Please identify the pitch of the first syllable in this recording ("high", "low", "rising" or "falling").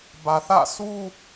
low